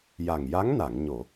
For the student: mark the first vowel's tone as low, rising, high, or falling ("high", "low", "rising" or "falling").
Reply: low